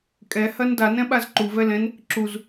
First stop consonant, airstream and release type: ejective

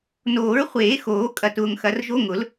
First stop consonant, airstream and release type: ejective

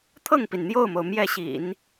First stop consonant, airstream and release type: aspirated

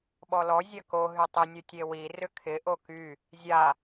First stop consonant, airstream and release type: implosive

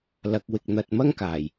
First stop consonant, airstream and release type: plain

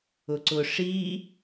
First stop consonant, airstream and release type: click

